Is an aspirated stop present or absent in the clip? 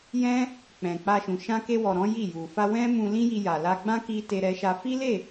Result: absent